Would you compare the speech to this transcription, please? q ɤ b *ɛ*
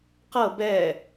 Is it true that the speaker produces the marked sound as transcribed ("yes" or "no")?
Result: yes